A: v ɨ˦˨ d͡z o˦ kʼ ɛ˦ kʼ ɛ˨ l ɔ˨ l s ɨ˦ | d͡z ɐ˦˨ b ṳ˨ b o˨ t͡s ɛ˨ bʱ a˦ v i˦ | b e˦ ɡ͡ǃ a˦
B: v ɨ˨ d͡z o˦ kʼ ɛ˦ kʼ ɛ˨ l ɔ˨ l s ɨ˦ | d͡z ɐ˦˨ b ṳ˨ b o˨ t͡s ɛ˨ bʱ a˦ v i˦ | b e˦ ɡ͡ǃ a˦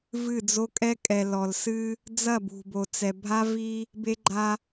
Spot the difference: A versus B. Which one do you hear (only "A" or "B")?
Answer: A